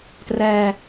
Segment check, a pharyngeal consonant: absent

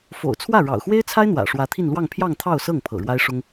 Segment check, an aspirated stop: present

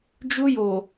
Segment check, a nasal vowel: absent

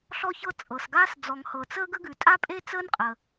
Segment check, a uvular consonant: present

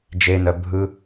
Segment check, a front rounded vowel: present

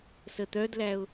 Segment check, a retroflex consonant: absent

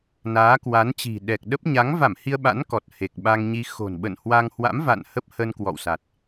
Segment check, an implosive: present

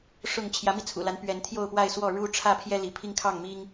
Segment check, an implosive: absent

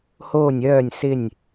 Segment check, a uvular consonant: absent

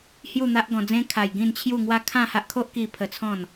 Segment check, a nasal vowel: present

